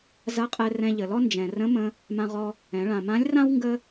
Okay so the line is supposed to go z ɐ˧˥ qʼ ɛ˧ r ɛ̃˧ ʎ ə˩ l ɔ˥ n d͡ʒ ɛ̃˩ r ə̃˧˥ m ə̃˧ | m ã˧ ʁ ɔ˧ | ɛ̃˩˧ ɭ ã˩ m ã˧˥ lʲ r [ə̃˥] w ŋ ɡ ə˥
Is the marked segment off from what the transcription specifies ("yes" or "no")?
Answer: yes